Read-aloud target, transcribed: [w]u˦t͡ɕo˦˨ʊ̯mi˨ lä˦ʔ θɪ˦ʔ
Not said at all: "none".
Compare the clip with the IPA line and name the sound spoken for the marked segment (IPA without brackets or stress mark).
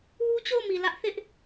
w